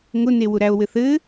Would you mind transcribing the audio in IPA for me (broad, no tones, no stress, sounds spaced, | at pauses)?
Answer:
ŋ ʊ n e w ʊ ɾ æ o̯ w ɘ θ ɘː